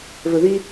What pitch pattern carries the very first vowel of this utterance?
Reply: low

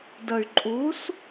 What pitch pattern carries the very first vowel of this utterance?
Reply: low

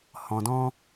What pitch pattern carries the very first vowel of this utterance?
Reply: low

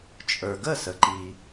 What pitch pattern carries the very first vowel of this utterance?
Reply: low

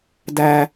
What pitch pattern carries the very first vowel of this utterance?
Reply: high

